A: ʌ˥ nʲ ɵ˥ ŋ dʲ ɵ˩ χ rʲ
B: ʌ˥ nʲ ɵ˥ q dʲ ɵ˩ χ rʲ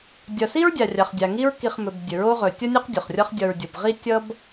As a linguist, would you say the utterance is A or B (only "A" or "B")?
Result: B